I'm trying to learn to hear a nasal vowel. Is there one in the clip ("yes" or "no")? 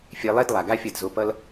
no